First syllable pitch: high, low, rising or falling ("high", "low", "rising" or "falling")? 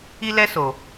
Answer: high